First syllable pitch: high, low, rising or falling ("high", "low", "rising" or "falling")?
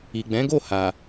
low